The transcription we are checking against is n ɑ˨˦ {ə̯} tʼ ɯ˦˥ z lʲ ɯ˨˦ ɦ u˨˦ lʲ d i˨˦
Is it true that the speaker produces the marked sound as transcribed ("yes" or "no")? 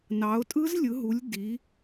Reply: no